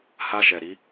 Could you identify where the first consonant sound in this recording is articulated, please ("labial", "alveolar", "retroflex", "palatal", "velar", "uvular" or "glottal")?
glottal